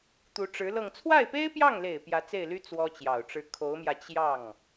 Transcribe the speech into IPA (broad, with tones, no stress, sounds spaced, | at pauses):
t̪ u˧˥ ʈ͡ʂ ɻ̩˧˥ l ɤ˥˧ ŋ t͡sʰ w a˥˩ ɪ̯ p e˥ ɪ̯ p j ɑ˥˩ ŋ l e˨˩ ɪ̯ p j ä˧˥ t͡s e˥˩ ɪ̯ l y˥ t͡s w ɔ˥ t͡ɕ j ɑ˨˩ ʊ̯ ʈ͡ʂ ɻ̩˥ kʰ o˧˥ ʊ̯ m j ä˧ t͡ɕ j ɑ˥˩ ŋ